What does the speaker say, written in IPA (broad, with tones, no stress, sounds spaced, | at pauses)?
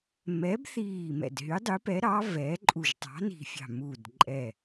m ɛ˨˥ b θ iː˧˩ m ɛ̰˧˩ d ɦ y˨˥ dˤ y˨˥ p ɛ˨˥ ɾ ɑ˨˥ v ɛː˨˥ ǃʼ u˧˩ ʒ tˤ ɑ̤˨˥ n i̤˧˩ fʲ ɑ̤˧˩ m uː˧˩ d ǃʼ ɛ˧˩